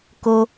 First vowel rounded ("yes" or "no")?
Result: yes